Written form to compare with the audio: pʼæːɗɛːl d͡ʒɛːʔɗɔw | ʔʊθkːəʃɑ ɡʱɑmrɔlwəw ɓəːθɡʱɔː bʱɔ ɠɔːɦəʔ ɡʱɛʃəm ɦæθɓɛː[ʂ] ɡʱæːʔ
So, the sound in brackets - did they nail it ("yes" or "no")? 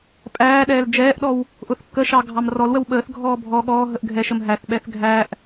no